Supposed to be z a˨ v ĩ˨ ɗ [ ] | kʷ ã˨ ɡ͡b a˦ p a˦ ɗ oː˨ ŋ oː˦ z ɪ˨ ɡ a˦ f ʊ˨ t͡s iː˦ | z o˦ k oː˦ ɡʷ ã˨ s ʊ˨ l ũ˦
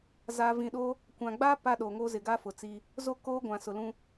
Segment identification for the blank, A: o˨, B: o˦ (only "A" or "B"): B